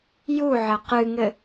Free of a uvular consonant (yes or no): no